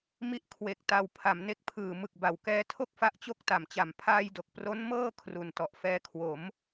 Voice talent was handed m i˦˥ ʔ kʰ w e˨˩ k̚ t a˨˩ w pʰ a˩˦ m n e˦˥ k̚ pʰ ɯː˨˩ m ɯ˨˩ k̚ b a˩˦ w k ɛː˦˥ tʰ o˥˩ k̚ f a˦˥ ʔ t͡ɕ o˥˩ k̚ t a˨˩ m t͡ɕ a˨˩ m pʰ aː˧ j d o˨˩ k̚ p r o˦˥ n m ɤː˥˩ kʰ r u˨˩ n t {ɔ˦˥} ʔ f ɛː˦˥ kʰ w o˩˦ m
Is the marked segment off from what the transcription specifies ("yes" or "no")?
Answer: yes